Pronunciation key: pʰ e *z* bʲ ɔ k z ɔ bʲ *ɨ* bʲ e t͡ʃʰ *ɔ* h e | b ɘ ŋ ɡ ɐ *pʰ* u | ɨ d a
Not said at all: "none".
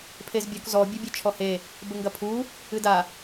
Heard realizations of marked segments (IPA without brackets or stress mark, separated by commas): z, ɨ, ɔ, pʰ